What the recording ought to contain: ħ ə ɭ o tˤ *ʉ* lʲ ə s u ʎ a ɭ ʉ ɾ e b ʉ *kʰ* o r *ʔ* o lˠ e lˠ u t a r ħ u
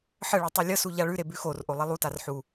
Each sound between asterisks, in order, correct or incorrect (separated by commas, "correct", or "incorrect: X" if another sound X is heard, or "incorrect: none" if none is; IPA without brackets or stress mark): correct, incorrect: x, correct